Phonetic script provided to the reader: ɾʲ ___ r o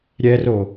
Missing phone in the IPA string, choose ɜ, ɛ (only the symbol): ɛ